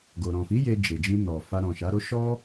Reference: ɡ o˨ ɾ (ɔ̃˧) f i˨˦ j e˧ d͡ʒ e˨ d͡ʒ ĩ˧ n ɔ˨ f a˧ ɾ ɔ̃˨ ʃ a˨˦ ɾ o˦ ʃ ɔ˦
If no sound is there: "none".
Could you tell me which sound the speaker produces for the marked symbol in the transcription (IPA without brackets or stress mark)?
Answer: ɔ̃˨